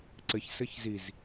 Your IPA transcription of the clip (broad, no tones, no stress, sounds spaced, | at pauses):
ǀ ɘ ç s ɘ ç z i z